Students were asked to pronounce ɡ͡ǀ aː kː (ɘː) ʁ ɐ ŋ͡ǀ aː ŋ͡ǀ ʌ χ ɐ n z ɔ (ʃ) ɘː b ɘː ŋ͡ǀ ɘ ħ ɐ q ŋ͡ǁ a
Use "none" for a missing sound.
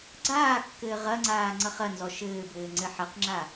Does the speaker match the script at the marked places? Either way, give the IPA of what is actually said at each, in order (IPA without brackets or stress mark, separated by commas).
ɘː, ʃ